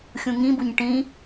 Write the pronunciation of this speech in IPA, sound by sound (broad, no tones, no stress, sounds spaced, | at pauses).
xʲ ũ ŋ ĩ b u ɲ ʈ ĩ